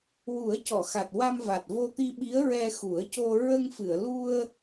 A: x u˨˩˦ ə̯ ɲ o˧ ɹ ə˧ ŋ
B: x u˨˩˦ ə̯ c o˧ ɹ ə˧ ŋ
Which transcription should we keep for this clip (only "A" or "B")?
B